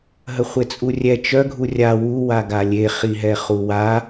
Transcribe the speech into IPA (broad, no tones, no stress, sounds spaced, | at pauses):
ɦ ə χʷ e t͡sʼ u rʲ ɛ t͡ʃ œ ɡʱ u rʲ a w u w a ɡ a lʲ e χ i ɦ ɛ χ u w a